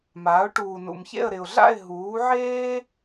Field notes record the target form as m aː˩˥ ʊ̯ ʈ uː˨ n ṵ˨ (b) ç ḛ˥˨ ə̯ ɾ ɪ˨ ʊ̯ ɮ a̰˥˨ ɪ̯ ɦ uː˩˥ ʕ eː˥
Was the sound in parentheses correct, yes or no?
no